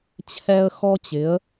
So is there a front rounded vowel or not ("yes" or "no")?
no